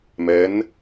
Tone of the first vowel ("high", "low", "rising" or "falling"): rising